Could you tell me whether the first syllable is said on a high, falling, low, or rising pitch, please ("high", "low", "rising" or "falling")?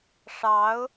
rising